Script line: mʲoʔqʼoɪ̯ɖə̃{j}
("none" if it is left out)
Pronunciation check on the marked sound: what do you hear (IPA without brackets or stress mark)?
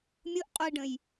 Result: j